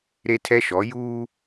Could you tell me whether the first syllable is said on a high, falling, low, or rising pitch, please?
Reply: high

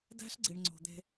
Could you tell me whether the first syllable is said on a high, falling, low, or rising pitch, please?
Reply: high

